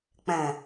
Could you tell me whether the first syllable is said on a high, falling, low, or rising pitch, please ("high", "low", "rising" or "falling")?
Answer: low